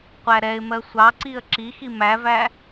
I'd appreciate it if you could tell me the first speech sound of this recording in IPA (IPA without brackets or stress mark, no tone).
qʷ